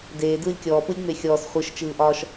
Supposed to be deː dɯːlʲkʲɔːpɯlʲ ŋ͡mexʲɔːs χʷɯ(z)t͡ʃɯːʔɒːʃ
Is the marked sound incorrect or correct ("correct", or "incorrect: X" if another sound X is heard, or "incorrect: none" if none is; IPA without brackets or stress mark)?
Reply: incorrect: ʃ